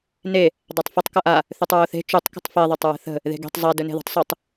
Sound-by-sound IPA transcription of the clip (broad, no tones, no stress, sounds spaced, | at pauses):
n e | dˤ a tˤ f ə tˤ k ʌ ʔ a | θ ʉ tˤ ɹ o θ e̤ t͡ʃ u tˤ k ə̤ tˤ f e ðˤ a tˤ ɹ ə̤ θ ə̤ | ð e̤ ɡ e̤ tˤ zˤ ɛ d ɵ n e̤ ð ṳ tˤ sˤ ʉ tˤ